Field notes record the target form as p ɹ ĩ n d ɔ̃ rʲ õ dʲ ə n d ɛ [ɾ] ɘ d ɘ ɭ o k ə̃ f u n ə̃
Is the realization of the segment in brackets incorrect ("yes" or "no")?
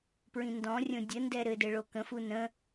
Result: no